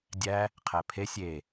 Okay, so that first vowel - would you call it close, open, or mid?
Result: open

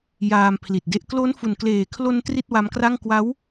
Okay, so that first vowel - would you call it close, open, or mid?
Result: open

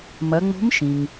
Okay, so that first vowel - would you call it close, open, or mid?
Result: open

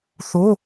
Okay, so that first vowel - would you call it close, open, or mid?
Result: mid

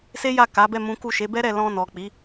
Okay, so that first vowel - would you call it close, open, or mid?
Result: mid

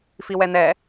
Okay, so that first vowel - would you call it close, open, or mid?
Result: close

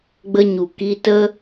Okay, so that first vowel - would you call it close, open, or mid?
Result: mid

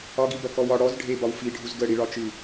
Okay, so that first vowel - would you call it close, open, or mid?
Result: open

